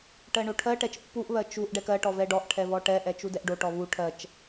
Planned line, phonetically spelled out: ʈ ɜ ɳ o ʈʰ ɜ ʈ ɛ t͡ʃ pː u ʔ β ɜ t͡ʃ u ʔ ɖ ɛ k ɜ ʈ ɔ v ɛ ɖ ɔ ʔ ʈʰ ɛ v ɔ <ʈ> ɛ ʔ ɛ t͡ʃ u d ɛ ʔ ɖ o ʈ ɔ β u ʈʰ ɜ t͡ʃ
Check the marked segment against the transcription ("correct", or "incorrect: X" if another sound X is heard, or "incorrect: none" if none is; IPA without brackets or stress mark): correct